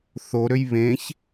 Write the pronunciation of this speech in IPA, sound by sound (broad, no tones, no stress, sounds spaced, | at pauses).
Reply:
θ o ɾ ø j β ẽ ç